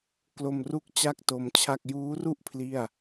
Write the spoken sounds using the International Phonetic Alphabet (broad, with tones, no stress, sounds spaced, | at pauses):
k l o˧ m r u˥˩ k̚ t͡ɕ a˥˩ k̚ t o˧ m t͡ɕʰ a˥˩ k̚ j uː˦˥ r u˥˩ ʔ pʰ l i˥˩ a̯